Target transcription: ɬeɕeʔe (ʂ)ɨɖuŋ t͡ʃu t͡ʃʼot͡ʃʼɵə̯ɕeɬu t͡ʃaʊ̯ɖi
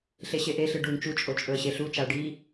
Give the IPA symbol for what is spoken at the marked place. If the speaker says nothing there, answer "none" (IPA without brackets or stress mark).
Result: ɬ